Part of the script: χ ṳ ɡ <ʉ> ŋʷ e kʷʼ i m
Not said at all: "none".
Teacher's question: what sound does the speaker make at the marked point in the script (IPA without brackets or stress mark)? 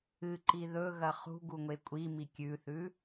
u